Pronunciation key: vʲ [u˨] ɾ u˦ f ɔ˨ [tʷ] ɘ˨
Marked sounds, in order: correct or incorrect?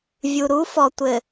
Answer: correct, correct

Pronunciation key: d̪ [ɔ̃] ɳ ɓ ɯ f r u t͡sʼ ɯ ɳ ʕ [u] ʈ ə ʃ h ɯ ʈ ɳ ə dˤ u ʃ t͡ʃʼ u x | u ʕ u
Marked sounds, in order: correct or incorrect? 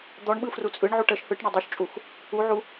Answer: incorrect: ɔ, correct

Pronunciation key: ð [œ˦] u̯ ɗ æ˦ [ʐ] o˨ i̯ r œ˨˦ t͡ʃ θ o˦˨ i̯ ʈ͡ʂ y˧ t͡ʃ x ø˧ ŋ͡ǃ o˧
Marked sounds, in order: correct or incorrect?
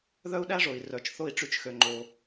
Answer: correct, correct

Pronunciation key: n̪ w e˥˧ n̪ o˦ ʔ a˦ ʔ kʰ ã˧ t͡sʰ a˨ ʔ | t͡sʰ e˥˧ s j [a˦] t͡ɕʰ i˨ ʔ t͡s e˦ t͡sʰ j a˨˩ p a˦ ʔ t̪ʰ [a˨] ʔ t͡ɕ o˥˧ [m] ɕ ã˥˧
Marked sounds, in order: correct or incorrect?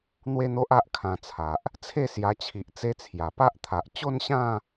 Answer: incorrect: a˧, correct, incorrect: n

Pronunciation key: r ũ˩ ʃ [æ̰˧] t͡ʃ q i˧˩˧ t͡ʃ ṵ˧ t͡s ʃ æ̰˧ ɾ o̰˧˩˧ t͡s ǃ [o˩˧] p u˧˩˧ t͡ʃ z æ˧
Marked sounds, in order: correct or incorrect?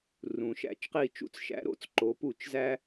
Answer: correct, correct

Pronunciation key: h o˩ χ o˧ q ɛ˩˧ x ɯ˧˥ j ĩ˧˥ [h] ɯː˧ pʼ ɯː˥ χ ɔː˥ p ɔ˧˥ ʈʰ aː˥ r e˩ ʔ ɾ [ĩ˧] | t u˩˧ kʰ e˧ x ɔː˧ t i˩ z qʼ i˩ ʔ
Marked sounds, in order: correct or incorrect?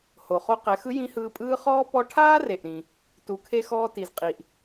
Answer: correct, incorrect: ĩ˩

